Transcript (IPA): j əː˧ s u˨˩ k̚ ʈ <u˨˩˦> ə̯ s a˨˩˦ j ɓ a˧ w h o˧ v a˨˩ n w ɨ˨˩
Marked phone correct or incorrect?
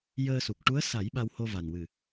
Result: incorrect